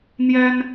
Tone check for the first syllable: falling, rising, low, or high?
high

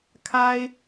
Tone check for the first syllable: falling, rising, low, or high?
low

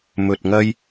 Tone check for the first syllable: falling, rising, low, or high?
low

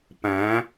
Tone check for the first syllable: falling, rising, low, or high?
rising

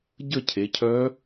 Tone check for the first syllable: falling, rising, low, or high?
falling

